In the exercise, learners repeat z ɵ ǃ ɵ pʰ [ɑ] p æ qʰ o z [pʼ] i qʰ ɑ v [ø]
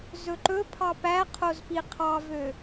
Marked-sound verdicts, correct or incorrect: correct, incorrect: p, correct

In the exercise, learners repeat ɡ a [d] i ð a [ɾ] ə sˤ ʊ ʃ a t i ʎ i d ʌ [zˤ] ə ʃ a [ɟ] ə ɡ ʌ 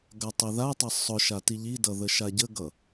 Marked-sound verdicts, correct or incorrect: incorrect: tˤ, incorrect: tˤ, incorrect: ð, correct

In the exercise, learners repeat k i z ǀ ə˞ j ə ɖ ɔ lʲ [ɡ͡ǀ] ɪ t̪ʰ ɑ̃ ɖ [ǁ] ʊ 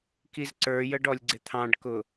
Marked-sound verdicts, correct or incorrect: correct, incorrect: k

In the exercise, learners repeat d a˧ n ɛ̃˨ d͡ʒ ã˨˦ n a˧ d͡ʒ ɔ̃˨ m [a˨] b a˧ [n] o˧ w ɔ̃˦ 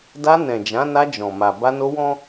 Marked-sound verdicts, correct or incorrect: correct, correct

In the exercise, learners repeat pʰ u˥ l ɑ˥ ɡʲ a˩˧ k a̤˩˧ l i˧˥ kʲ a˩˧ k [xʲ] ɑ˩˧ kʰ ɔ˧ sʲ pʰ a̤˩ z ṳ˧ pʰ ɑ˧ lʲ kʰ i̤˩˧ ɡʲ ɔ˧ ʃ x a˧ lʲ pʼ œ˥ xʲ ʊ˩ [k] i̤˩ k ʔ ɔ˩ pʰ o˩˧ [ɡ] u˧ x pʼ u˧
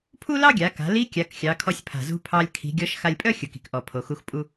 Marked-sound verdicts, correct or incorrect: correct, correct, incorrect: x

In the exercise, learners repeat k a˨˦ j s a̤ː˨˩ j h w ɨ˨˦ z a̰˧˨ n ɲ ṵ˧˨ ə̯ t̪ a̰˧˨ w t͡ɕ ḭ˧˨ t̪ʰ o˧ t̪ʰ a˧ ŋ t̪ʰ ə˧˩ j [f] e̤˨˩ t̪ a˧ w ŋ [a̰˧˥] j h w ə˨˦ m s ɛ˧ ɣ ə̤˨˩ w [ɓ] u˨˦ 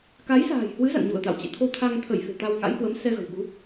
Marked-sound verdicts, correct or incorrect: correct, correct, correct

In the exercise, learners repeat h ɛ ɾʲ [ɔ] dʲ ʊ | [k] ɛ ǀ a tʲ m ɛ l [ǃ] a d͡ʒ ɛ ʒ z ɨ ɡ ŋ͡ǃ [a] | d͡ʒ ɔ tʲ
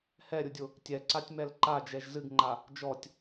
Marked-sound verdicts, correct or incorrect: incorrect: ʊ, incorrect: tʲ, correct, correct

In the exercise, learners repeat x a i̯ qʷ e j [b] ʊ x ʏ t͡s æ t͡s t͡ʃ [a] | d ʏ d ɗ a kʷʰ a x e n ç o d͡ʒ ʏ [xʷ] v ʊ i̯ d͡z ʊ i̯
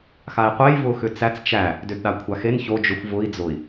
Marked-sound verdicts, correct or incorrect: incorrect: v, incorrect: æ, correct

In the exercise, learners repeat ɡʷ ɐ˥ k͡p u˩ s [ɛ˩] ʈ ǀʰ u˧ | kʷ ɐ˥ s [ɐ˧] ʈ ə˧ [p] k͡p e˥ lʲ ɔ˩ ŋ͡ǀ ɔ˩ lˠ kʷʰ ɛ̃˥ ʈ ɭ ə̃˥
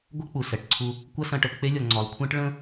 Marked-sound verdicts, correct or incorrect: correct, incorrect: ɐ̃˧, correct

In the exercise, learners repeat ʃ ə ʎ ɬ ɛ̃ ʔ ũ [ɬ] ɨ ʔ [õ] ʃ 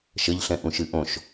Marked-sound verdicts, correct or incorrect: incorrect: ʃ, correct

